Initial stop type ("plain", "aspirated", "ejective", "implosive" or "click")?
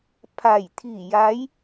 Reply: aspirated